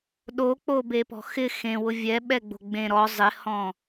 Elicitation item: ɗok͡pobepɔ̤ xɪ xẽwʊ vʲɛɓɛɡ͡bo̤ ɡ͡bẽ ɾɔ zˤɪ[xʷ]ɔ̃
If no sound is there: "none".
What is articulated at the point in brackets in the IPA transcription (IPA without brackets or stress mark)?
h